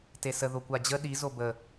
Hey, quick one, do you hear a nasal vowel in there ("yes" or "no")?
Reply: no